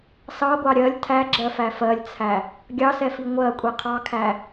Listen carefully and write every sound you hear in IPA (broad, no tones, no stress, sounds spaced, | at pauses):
s ɑ ɡʷ ɑ ɾʲ ɜ lʲ tʰ æ ɡ͡ǁ ɜ f æ f ɜ lʲ t͡sʰ æ | ɡʲ ɑ s ɛ f i ŋʷ ɜ kʷʼ i qʰ ɑ kʰ æ